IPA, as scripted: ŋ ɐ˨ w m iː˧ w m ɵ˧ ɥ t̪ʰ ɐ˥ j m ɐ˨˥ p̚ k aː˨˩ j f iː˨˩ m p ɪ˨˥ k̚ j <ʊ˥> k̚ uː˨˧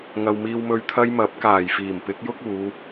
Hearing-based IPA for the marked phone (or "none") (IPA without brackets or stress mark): ʊ˥